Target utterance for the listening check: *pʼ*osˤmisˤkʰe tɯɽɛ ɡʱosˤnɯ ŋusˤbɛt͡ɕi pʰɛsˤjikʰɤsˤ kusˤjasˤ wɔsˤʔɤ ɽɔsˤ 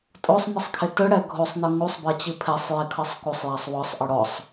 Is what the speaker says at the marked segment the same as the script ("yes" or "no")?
no